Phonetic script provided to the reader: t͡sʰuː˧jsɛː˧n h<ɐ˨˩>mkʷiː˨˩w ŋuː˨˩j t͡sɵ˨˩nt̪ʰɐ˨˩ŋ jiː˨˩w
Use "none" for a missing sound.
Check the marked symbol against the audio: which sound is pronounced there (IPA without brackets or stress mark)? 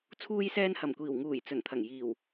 ɐ˨˩